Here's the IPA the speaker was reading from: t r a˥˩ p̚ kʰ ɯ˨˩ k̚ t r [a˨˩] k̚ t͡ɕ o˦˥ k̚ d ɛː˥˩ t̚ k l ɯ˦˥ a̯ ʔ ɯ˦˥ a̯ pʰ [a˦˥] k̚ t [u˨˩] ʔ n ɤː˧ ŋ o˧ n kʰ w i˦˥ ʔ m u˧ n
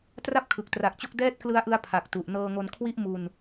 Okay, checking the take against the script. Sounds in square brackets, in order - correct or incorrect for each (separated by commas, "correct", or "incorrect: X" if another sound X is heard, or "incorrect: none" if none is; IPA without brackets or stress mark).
correct, incorrect: a˨˩, correct